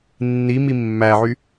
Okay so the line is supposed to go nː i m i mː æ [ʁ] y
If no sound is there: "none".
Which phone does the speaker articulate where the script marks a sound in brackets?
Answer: ʕ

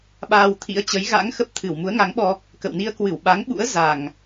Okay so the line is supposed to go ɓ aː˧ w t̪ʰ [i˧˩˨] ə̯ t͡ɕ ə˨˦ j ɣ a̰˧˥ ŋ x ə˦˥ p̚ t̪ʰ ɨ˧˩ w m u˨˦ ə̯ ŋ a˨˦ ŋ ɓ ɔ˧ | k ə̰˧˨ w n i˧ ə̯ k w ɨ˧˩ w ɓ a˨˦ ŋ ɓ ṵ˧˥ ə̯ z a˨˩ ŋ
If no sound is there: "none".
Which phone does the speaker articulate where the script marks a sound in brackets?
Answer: ḭ˧˥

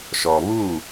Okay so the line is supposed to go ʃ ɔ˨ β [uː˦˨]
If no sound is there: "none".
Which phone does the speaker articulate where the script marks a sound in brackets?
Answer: uː˦˨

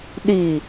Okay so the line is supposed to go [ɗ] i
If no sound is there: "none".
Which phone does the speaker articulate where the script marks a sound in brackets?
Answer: ɗ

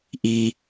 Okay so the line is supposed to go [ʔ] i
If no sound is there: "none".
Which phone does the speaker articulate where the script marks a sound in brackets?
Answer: ʔ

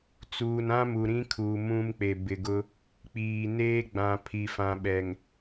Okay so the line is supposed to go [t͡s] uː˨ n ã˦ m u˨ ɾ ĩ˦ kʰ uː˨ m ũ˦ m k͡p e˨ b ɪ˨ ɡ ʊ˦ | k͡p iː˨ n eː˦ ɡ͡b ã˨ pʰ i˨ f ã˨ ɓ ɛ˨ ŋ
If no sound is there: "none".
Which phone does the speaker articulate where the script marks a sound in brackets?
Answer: t͡s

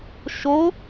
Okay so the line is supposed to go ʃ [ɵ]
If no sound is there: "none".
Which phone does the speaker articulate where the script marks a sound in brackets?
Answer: o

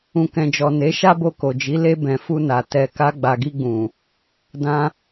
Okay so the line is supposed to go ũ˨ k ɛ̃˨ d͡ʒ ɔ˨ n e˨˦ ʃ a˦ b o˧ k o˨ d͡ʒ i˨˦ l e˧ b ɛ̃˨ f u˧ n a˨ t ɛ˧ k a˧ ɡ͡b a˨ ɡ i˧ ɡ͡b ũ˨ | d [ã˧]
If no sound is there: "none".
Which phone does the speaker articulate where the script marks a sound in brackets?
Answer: ã˧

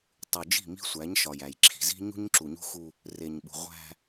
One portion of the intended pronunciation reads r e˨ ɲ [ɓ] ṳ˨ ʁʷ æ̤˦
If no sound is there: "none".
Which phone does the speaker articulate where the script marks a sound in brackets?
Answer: ɓ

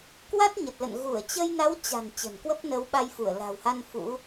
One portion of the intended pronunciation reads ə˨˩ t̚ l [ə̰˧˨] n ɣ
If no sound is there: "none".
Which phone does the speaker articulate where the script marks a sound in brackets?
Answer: ə̰˧˨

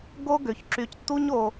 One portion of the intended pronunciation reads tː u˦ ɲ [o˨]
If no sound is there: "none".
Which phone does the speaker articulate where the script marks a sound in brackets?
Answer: o˨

